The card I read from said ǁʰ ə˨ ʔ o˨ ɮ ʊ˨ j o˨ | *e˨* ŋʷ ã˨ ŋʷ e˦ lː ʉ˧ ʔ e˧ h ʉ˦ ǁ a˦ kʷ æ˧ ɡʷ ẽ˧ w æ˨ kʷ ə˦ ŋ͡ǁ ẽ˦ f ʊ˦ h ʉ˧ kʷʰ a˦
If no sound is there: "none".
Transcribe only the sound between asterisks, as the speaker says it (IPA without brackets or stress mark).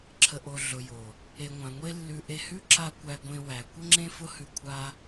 e˨